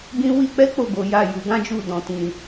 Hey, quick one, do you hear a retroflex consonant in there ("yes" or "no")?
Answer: no